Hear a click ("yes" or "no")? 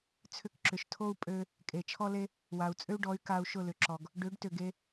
yes